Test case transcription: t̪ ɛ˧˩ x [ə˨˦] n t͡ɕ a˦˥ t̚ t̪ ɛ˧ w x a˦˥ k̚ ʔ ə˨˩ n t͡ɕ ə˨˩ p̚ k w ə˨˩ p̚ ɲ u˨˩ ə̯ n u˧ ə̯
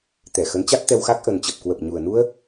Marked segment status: correct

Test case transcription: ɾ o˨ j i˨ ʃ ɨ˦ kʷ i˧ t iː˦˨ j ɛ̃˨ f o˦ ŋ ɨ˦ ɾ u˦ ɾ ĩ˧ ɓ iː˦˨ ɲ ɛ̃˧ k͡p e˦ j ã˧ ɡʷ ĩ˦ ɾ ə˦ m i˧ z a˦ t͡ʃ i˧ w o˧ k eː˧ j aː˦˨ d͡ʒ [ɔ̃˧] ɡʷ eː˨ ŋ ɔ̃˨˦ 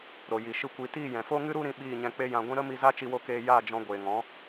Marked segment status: correct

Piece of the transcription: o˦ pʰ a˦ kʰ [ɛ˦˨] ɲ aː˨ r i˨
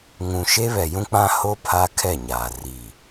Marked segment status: correct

